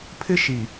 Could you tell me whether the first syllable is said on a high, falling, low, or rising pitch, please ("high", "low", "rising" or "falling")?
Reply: high